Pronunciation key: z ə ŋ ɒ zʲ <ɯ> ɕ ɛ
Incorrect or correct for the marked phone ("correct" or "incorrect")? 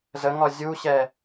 incorrect